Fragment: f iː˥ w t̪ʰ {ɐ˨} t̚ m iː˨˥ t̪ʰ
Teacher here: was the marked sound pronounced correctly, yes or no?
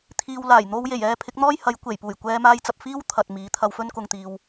yes